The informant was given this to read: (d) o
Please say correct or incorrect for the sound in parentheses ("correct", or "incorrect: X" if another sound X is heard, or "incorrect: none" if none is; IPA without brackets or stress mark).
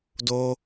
correct